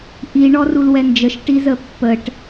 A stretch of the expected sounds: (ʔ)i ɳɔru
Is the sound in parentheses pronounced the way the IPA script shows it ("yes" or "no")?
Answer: yes